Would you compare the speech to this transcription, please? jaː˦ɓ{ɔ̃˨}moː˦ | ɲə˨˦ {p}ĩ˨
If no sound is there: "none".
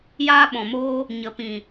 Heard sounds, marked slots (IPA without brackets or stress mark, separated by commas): ɔ̃˨, p